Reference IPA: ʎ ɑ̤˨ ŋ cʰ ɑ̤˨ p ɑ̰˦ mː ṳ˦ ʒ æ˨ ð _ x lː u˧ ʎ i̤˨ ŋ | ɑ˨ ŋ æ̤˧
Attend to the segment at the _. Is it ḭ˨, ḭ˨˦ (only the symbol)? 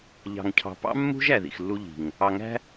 ḭ˨